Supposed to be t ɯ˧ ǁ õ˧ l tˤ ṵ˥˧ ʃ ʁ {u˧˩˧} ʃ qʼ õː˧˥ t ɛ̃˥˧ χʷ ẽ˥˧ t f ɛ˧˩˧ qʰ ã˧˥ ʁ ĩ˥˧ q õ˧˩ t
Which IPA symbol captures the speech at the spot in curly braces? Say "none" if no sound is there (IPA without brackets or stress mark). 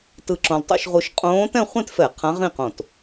u˧